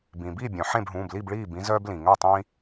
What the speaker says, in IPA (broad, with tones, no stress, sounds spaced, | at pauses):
b ĩ˩ b i˥˩ bʲ œ̃˩ ħ ẽ˥˩ b ɦ ũː˩˧˩ b l i˥˩ b ɭ iː˥˩ b ĩ˦ z œː˦ b l ĩ˩ ŋ œ˥˩ tˤ ĩ˦